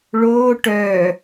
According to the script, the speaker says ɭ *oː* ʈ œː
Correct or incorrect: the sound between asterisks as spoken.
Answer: correct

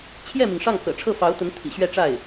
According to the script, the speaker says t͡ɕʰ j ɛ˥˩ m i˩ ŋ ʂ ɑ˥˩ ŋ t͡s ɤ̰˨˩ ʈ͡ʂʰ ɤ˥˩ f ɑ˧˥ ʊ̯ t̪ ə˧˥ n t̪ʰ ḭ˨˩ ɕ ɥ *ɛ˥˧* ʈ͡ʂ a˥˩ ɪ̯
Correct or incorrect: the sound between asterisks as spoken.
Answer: correct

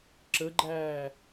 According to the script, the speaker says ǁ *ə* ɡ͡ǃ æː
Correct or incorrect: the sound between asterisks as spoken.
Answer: correct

